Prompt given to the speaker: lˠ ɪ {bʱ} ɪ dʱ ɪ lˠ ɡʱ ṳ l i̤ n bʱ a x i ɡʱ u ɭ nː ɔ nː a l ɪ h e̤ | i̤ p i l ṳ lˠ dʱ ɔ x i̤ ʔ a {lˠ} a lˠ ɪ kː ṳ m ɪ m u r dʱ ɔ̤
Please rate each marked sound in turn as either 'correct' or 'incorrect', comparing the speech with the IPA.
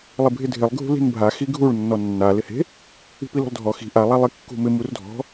correct, correct

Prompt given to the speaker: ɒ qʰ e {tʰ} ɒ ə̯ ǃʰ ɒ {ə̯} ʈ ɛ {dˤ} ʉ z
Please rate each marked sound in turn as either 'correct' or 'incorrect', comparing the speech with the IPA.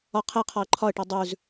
incorrect, correct, correct

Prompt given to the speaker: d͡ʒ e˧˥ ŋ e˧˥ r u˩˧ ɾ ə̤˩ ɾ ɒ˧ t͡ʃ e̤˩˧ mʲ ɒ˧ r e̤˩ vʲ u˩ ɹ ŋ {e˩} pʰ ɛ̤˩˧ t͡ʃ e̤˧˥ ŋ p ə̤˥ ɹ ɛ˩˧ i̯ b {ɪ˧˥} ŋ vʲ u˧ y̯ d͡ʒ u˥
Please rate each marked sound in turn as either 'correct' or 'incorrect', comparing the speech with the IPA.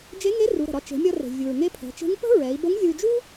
incorrect, incorrect

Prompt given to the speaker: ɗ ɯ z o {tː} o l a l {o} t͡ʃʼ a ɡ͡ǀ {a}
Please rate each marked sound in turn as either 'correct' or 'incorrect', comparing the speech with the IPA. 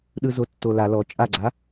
correct, incorrect, correct

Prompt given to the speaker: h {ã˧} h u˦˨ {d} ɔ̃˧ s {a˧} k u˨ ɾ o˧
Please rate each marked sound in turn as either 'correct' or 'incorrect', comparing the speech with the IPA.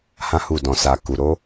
incorrect, correct, correct

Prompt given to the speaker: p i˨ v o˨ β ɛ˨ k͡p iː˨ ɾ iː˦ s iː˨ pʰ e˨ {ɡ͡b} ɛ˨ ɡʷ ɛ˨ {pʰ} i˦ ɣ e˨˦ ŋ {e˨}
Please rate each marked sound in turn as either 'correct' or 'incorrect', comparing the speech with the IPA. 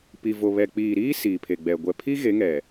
correct, correct, incorrect

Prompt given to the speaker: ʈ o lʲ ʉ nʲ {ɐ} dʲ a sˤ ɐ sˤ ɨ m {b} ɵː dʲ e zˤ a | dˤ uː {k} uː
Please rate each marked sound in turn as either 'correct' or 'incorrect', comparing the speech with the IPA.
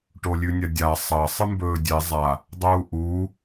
correct, correct, incorrect

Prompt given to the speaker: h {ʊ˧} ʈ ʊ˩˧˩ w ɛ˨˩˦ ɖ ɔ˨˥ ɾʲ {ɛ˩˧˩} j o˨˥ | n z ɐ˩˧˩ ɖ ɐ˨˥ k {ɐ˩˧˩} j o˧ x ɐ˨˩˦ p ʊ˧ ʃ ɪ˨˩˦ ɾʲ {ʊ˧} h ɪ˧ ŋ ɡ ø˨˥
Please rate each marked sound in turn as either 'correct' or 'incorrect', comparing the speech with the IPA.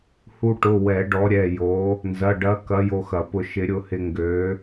incorrect, correct, incorrect, correct

